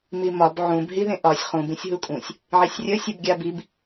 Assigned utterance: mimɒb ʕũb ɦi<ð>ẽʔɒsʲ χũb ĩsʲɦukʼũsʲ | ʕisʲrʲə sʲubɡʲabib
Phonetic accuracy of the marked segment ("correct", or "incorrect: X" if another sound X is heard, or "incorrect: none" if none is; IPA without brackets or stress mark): correct